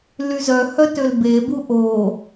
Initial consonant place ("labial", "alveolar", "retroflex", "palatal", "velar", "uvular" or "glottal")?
alveolar